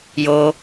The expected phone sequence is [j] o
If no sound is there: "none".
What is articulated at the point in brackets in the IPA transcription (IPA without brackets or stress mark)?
j